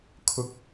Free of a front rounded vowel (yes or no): yes